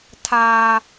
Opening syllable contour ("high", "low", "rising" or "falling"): low